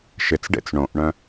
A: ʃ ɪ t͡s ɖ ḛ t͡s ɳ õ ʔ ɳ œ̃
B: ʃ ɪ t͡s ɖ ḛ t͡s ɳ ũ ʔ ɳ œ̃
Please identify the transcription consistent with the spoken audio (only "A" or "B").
A